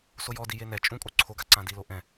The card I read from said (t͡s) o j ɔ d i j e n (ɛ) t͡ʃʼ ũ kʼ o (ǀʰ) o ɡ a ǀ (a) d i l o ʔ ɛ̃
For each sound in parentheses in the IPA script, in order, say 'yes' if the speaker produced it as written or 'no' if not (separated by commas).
no, yes, yes, no